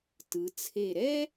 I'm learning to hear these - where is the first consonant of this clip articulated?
tongue tip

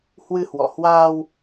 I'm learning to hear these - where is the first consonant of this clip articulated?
throat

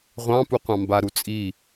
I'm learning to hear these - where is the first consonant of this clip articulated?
uvula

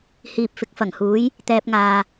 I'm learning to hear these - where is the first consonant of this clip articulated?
throat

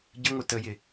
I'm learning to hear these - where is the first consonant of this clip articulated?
palate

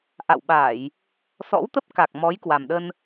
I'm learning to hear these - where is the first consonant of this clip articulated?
throat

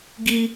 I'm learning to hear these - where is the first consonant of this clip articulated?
velum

